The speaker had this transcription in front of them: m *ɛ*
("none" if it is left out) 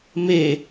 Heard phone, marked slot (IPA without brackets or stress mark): e